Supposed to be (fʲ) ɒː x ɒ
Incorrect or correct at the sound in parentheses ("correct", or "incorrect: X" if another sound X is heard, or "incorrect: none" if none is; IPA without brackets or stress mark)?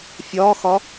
correct